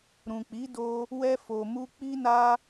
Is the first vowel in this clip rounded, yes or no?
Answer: yes